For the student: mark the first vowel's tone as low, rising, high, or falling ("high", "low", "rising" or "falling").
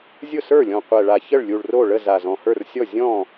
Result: falling